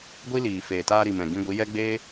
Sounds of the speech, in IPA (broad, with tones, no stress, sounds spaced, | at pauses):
ɡʷ i˦ l iː˨ f eː˨ t aː˧ ɾ i˨ m ɛ̃˨ ɡ ĩ˧ ɡʷ i˨˦ j ɛ˦ ɡ͡b eː˦